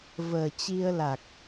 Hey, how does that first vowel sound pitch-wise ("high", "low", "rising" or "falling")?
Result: low